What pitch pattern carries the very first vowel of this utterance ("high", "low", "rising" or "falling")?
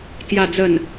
low